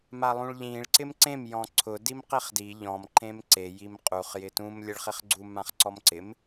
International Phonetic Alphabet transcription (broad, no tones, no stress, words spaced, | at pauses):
malˠũɭʎĩɭ ǀɪmǀẽm jɔ̃ǀʰʊ dimqiχdi ʎɔ̃m ǃẽmǀe jimqʼuχ jɪtũm lʲɛɭχiχɡ͡ǀu mãχǀɔmǀɪm